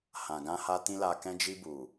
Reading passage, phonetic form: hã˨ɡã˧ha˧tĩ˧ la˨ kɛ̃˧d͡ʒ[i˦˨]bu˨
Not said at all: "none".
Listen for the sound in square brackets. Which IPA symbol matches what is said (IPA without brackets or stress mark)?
i˧